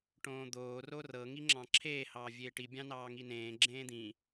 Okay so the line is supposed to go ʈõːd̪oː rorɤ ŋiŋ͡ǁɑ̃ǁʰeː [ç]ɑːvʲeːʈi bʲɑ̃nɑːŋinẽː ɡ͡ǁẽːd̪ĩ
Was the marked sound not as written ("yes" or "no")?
yes